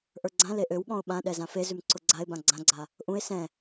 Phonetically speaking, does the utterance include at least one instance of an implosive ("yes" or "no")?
yes